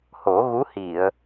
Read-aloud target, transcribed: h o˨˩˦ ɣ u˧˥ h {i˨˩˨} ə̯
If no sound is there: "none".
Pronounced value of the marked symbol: i˨˩˨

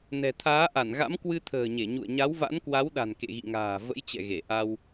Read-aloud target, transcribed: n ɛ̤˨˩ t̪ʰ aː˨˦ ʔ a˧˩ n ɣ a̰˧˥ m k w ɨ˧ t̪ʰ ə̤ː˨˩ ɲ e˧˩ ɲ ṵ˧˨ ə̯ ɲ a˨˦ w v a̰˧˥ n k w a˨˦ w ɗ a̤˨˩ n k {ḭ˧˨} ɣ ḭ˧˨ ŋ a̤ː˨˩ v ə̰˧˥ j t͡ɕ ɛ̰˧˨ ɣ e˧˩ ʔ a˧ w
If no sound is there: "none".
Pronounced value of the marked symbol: ḛ˧˨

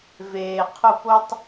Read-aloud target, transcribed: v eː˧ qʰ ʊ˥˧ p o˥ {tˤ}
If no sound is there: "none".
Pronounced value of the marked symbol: tˤ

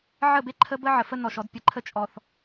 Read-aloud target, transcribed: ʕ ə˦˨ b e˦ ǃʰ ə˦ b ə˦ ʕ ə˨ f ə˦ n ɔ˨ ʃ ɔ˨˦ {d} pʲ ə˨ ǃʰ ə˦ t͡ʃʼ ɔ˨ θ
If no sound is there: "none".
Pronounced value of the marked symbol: d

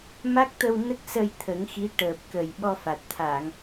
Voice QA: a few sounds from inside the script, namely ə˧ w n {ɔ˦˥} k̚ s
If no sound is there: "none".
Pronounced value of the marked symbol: ə˦˥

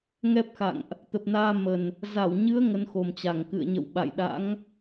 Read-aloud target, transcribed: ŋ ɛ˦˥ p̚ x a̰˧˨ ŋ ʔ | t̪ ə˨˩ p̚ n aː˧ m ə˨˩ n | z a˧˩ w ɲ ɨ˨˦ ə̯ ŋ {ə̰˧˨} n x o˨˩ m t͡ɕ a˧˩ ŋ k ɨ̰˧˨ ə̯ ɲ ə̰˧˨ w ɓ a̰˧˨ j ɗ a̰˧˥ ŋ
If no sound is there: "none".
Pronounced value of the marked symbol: ə˨˦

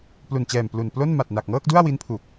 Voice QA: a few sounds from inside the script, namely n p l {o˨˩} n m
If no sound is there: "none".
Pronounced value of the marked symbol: o˥˩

